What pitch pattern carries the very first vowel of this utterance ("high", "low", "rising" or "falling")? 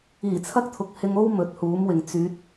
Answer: low